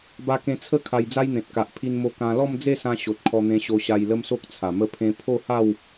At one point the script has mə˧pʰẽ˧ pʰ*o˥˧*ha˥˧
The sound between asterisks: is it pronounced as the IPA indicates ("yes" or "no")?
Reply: yes